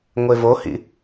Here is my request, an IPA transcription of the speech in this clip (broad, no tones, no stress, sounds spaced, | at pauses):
ŋʷ e v o h ḭ